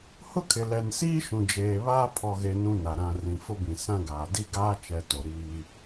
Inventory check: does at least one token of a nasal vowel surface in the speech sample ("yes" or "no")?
yes